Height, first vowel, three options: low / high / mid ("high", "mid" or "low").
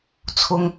high